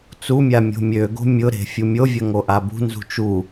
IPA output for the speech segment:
t͡s u mʲ a mʲ o̤ mʲ ø ɡ o̤ mʲ ʊ ɾ e̤ fʲ u mʲ o vʲ ɐ ŋ o ʔ a b ṳ n z ṳ t͡ʃ u

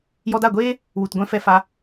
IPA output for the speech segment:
j ɔ˧ d a˦˨ ɡʷ eː˦ | w u˨ t ɡʷ ɛ̃˧ f ɛ˧ f a˧

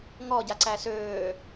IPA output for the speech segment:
ŋ ɔ ɟ a ǀ æ s øː

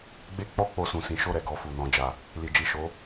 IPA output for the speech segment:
ɡ͡b e˦ k͡p ɔ˦ k͡p o˧ s ũ˨ s ĩ˨˦ ʃ o˦˨ ɾ ɛ˨ ɡ ɔ˧ f u˨ n ɔ̃˨ d͡ʒ a˨ | l i˨ d͡ʒ i˨ ʃ o˨˦

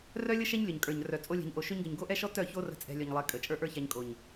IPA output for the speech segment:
r œ˦ lʲ ə˦ ʃ ɛ˦ ɲ lʲ œ˨ ɲ kʼ ə˞˨ ɲ r œ˨ t͡sʼ o˧ lʲ ɛ̤˨ ɲ ʔ o˨ ʃ ø˧ ɲ ɡ ə˨ ɲ ɡ o˦ ʔ ɛ˦ ʃ ɔ˦ t œ˦˨ ç o˦ r ə̤˧ t͡sʼ ɛ̤˧ lʲ œ˨ ɲ lˠ ɛ˨˦ kʼ ə˨ t͡ʃʼ ə˞˦ ʔ ə˞˦ ç a˧ ɲ kʼ o˨ ɲ

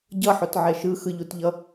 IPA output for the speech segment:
ɟ ʌ ħ o t ʕ ɛ ʃ ɯ x ɯ ʎ u t ʎ ʌ

